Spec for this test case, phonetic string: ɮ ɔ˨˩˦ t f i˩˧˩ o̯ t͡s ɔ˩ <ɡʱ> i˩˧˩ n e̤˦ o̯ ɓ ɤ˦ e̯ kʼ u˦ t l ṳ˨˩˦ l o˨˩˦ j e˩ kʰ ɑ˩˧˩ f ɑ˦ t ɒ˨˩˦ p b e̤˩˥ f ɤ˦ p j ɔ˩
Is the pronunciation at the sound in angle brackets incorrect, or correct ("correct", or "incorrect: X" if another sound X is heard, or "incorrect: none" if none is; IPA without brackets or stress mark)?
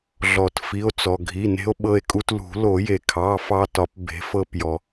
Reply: correct